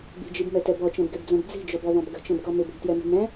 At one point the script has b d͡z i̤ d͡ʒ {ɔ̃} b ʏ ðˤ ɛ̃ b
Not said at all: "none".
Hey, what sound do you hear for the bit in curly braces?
ɔ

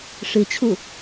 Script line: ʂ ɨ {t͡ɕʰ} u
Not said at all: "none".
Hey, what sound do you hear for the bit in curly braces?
t͡ɕʰ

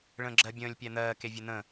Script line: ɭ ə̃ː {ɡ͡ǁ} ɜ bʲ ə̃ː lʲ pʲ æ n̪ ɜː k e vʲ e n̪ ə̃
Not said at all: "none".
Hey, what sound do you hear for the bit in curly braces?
ɡ͡ǁ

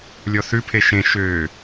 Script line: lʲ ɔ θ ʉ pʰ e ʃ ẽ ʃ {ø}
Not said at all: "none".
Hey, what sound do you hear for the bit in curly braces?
ø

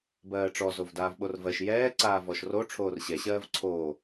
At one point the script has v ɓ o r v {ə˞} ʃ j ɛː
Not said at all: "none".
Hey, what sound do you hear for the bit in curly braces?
ɜ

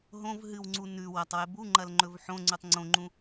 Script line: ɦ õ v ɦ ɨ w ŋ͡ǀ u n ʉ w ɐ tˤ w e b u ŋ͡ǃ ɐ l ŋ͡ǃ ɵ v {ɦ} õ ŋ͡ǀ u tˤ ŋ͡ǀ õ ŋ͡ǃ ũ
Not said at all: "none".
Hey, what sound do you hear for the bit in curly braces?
ħ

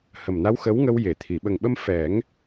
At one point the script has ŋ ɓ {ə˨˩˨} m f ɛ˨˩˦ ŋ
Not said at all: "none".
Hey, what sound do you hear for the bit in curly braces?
ə˧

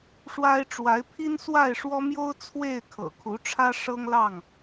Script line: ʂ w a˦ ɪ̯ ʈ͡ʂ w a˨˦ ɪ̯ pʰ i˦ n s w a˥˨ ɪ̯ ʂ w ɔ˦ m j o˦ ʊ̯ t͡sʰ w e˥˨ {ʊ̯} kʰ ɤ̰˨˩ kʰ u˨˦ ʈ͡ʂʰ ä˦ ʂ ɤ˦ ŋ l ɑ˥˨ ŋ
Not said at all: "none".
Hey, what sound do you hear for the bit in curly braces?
ɪ̯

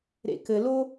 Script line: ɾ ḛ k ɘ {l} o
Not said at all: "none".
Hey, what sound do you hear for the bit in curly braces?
l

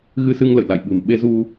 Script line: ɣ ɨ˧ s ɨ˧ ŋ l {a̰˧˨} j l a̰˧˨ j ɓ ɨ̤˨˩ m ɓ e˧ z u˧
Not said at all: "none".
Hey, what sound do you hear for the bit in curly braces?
ə̰˧˨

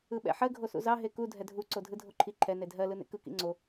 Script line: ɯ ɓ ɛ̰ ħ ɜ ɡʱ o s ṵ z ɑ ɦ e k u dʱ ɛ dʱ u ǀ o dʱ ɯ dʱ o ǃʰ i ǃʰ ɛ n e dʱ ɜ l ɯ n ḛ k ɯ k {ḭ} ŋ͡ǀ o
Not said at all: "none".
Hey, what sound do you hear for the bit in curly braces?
ḭ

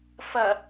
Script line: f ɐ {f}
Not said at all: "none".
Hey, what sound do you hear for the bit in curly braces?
none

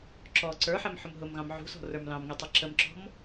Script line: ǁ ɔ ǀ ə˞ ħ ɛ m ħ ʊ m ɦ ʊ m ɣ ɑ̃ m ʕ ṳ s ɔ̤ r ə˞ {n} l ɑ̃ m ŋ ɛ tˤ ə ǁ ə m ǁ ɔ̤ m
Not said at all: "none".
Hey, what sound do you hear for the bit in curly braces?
m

